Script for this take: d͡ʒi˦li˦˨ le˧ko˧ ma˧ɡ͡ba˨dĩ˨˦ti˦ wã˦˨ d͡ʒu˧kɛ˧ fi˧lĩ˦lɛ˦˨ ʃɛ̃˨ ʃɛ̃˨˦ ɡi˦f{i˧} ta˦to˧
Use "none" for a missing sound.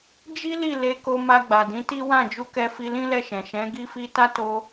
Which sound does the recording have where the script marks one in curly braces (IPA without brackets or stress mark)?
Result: i˦